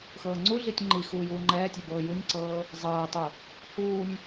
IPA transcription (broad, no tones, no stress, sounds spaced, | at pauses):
x ɤː ŋ͡ǀ u ɮ i tʲ ŋ͡ǃ i x uː j uː ŋ͡ǃ ɛː tʲ ɤ b ɤː j u nʲ ǀ ɤː | zˤ ɤː tˤ u | h uː nʲ